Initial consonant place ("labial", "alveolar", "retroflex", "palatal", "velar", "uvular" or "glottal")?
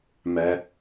labial